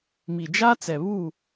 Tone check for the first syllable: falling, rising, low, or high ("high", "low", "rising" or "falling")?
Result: low